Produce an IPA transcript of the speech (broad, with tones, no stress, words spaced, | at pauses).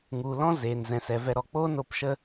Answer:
ŋu˨ lɔ̃˦ zeː˨nzɛ̃˨sɛ˨vɛ˧ ɾɔ˨k͡poː˦no˦˨pʃə˦